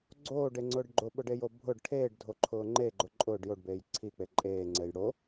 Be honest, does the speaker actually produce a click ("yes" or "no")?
yes